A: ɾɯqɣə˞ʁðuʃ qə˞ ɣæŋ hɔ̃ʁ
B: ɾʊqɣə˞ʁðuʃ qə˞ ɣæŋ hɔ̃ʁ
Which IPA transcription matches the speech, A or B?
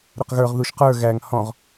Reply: B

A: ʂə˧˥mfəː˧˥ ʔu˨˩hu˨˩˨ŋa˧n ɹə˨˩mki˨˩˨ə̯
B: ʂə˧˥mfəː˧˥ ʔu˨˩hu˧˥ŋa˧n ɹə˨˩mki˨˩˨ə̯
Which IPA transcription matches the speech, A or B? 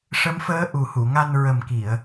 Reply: A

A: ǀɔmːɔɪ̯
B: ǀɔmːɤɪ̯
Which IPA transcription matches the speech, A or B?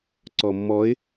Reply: A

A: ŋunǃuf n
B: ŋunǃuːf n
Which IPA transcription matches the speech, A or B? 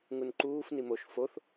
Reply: B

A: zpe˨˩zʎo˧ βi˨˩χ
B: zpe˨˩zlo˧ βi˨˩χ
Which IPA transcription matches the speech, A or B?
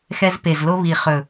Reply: B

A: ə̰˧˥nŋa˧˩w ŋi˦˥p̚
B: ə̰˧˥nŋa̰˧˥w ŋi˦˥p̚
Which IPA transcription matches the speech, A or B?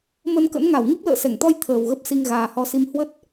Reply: A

